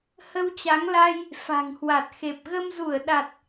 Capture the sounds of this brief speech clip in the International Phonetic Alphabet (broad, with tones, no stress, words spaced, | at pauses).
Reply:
hə˧wt͡ɕa˨˦ŋla˧j | fa̤˨˩ŋhwa˨˩t̚xe˨˩p̚ ɣə˧mzu˧˩ə̯ ɗa˨˩t̚